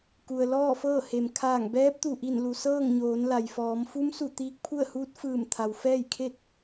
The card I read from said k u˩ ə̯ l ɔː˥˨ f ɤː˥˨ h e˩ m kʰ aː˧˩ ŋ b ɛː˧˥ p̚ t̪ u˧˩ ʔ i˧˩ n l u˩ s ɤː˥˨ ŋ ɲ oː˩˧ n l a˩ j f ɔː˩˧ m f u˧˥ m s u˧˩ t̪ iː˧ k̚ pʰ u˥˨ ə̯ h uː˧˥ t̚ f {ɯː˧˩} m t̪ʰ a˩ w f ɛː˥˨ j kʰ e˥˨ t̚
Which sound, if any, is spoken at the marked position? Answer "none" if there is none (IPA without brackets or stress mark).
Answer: ɯː˧˩